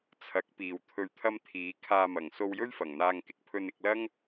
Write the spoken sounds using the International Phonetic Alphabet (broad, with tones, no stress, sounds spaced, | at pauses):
t͡sʰ ɐ˨˥ k̚ p iː˨˩ w t̪ʰ ɵ˨ ɥ t̪ʰ ɐ˧ m t̪ʰ iː˨˥ kʰ aː˧ m ɐ˨˩ ŋ s o˧ w j ɵ˥ ɥ f ɐ˨˩ ŋ n̪ aː˧ ŋ k ɪ˧ k̚ pʰ ɵ˧ n ɪ˧ k̚ l ɐ˥ ŋ